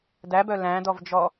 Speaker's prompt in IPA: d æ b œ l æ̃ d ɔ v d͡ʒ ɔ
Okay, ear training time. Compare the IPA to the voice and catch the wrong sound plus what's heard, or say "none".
none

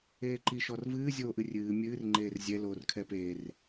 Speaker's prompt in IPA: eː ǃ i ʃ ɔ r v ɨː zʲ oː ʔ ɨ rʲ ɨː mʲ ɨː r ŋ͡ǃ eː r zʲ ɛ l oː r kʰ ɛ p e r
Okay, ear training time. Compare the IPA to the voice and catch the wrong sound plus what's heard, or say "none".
none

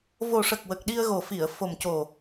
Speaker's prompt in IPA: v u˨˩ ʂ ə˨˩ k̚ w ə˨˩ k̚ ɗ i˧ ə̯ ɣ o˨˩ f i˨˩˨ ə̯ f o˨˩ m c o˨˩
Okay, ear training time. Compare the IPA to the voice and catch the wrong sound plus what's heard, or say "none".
u˨˩ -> o˨˩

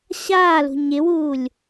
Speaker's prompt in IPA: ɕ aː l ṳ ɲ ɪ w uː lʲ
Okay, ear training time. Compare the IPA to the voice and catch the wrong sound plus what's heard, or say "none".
none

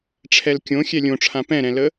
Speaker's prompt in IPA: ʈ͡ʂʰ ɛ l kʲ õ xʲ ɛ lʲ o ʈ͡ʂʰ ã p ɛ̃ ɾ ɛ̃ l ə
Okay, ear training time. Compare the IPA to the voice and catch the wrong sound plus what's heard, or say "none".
o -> õ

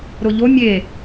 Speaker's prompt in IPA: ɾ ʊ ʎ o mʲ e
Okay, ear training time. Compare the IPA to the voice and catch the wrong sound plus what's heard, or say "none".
none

